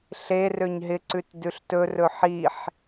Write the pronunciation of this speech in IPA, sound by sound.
ɬ e r ø ɲ ɦ ɪ ǀ ʉ t d ʉ ɬ t ɵ r ɵ ħ i ħ

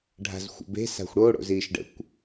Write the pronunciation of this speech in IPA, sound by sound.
ɖʱ a̤ z xʷ ə̰ b e̤ s a̤ xʷ ɽ o ɽ o̰ z iː ʃ ɖ ə̰ kʷ

